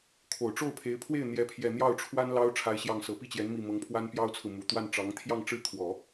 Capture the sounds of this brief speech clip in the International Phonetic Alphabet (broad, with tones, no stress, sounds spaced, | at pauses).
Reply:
kʰ o˨˩ ʊ̯ ʈ͡ʂ o˥˩ ʊ̯ pʰ e˧˥ ɪ̯ pʰ w e˥˩ ɪ̯ n̪ j ɛ˥ pʰ j ɛ˥˧ n̪ j ɑ˥˩ ʊ̯ ʈ͡ʂʰ w a˥ n l ɑ˥ ʊ̯ ʈ͡ʂʰ a˥ ɪ̯ ɕ j ɑ˥˩ ŋ s ɤ˨˩ p i˥˩ t͡ɕ j ɛ˧˥ n m i˥˩ m ɤ˧˥ ŋ pʰ w a˥ n p j ɑ˥ ʊ̯ t͡sʰ ɹ̩˨ m u˨˩ t̪ w a˥˩ n ʈ͡ʂ ɑ˧˥ ŋ t̪ʰ j ɑ˥˧ ŋ ʈ͡ʂ ɻ̩˥˩ kʰ w ɔ˨˩˦